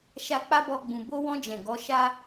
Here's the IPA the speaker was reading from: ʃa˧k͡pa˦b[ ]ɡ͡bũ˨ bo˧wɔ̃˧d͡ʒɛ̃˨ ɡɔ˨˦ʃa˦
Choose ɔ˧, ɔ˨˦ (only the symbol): ɔ˧